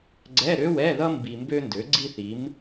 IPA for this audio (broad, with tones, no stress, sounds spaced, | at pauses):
ɡ͡ǀ ɛ˧˥˧ ɾ ø˧˥˧ w ɛ˧˥˧ ð ʌ˥ m b i˧ m b ø˥ n d ø˨˥ ɡ͡ǀ i˥ θ i˨˥ m